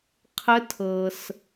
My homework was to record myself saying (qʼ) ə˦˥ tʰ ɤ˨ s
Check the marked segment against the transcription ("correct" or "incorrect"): incorrect